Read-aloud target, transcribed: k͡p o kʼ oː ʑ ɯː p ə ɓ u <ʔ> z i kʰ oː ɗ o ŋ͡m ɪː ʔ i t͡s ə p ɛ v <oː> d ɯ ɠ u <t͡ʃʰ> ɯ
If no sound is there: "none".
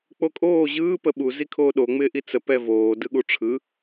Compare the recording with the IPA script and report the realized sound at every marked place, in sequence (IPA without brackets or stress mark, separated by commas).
none, oː, ʈ͡ʂʰ